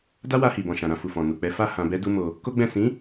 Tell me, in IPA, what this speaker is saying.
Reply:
d a˦ w a˧ h i˨ b ɔ̃˨ ʃ ã˨ ɾ ã˧ f u˨ f ɔ̃˨ n u˨ k͡p ɛ˨˦ f a˦˨ h ã˧ b ɛ˦ d u˦ m o˧ | k o˦ ɡ͡b ɛ̃˦˨ s ĩ˨˦

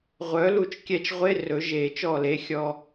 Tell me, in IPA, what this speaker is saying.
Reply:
ʁʷ œ˨˥ l u˦˨ t͡ʃ kʲ ɛ˦˨ t͡ʃ ʁʷ e˧˥˧ r ɵ˨˩˦ ʒ e˨˩˦ t͡ʃ ɔ˦˨ l e˨˥ xʲ ɔ˧˥˧

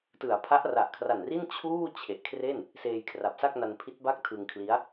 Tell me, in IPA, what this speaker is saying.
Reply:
t ɯ˩˦ a̯ pʰ a˦˥ ʔ r a˨˩ ʔ kʰ r a˨˩ n r i˥˩ n t͡ɕʰ uː˥˩ t͡ɕʰ e˨˩ ʔ kʰ r e˥˩ n | s eː˧ j kʰ r a˨˩ p̚ s a˥˩ k̚ n a˧ n pʰ i˦˥ t̚ b a˥˩ k̚ tʰ ɯ˧ ŋ kʰ l i˦˥ a̯

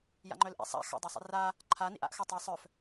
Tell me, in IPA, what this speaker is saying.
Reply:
j a̰ ŋ͡ǃ œ l ʔ ḭ sˤ a̰ x a̰ dˤ a sˤ ḭ r a | ǃʰ a n ḭ ʔ a̰ ʔ x œ tˤ i sˤ œ f

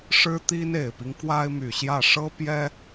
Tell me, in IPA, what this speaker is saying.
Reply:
ʂ ɻ̩˥ t̪ i˥ n e˨˩ ɪ̯ p i˦ ŋ k w a˥ ɪ̯ m y˨˩ ɕ j ä˥˩ ʂ ɤ˥ p j ɛ˥

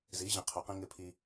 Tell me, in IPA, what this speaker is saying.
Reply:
z i˨˦ ʑ ĩ˨ qʰ u˨ q ĩ˦ ŋ ɪ˦ pʰ i˦

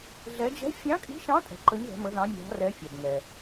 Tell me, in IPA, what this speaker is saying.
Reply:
ɮ ɛ˧˥ d͡ʒ ɛ̤˧˥ fʲ ɑ̃˧˥ kʼ i̤˧˥ ʃ ɑ̃˧˥ tʼ ɛ̤˨ ǃ ə˧˥ ɲ ð ɛ̤˧˥ m ə˧˥ ð ɑ̃˧˥ mʲ ɑ̤˧˥ r ɛ˧˥ fʲ ɑ˨ b ŋ ɛ˨

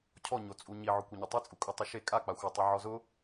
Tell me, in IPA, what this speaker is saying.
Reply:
cʰ ɔ ɲ o t͡sʼ u ɲ i ʕ ʊ kʷ e ɲ ʊ tˤ i t͡sʼ u kʼ u tˤ ʊ ʃ e kʼ a k͡p a xʷ a tˤ i ʕ ɔ z ʊ

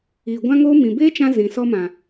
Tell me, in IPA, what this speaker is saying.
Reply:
iː˨ ɡʷ ã˦ ŋ oː˦ m ĩ˨ b eː˦ t͡ʃ ã˧ z ĩ˨ s ɔ˧ m ã˨

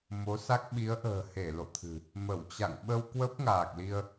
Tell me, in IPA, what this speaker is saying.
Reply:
m o˨˦ s a˦˥ k̚ ɓ i˨˦ ə̯ ʔ ə̤ː˨˩ h e˧˩ l o̰˧˨ t̪ʰ ɨ̤˨˩ | m ə˧˩ w t͡ɕ a̰˧˨ ŋ ɓ ə˧ w k w ə˦˥ p̚ ŋ aː˨˩ k̚ l i˧ ə̯

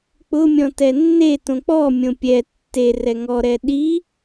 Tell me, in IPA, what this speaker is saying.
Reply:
k͡p ʊ mʲ ɔ̃ t ɛ nː e t õ k͡p ɔ mʲ õ pʲ ɛ tː e r ɛ ŋ ɔ ɾ ɛ ɗ i

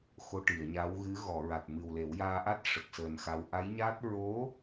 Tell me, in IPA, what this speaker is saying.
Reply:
x o˧ ʈ i˨˩˨ ə̯ ɲ a˧˥ w ɣ ɨ˧˥ ɣ ɔ˨˩˨ ɹ a˨˩ t̚ m ɨ˨˩ w l e˨˩˦ w j aː˧ ʔ a˦˥ t̚ ʂ ə˨˩ k̚ s əː˨˩ n x a˧ w ʔ a˧˥ j ɲ aː˦˥ t̚ ɹ o˧˥

